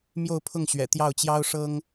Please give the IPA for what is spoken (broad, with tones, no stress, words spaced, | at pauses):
mjo˥˧ʊ̯pʰʊ˥˩ŋɕɥɛ̰˨˩ t̪jɑ˥˩ʊ̯t͡ɕjɑ˥ʊ̯ʂɤ˥ŋ